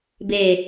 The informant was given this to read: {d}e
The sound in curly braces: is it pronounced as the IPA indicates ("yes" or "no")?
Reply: no